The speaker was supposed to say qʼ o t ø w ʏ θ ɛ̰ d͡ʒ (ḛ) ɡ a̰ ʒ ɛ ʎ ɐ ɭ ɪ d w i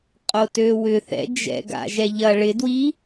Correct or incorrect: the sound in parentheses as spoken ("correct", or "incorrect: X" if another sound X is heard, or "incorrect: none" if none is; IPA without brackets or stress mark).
incorrect: ɛ̰